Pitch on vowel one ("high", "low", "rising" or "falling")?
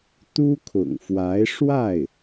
high